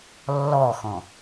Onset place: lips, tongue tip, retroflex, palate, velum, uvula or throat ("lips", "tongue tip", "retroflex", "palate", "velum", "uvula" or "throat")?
tongue tip